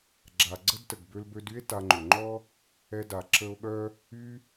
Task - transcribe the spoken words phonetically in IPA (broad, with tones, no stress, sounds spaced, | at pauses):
ɡ͡ǁ a˩ ɡ͡ǀ ə˥ d t ə˩ ɡ b ø˧ l b ø˧ d y˥ e̯ t a˧ ŋ͡ǃ ʏ˩ ŋ͡ǃ ɔ˥ | ɛ˧ d a˩ ǁ ə˧ o̯ ɠ œ˥ | y˧